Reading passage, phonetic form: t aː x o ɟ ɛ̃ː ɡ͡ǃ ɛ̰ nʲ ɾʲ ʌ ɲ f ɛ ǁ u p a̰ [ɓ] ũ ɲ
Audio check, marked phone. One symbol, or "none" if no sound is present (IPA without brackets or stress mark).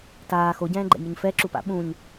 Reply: ɓ